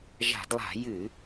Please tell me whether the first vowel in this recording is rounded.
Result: no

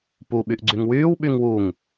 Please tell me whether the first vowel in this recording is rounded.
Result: yes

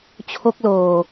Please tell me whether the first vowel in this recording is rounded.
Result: yes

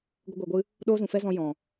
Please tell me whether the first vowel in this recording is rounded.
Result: no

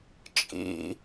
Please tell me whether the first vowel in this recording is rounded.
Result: no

